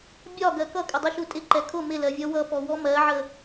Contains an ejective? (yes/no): yes